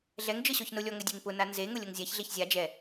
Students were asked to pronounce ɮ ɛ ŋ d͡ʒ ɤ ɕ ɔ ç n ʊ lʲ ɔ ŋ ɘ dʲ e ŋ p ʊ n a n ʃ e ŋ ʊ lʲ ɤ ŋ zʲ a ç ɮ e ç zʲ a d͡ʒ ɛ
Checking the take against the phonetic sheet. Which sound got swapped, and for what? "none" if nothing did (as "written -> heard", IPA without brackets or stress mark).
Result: ʃ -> z